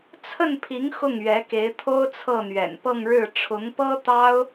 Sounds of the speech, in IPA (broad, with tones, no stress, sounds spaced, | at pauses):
t͡sʰ ə˥˩ n pʰ i˧˥ ŋ x ʊ˥˩ ŋ ɥ ɛ˧˥ k e˧˥ ɪ̯ t̪ʰ o˥ ʊ̯ t͡sʰ ɤ˥˩ n̪ ɥ ɛ̰˨˩ n p ɤ˥˧ ŋ ɻ ɻ̩˥˩ ʈ͡ʂʰ ʊ˧˥ ŋ p ɤ˥ t̪ ɑ˥ ʊ̯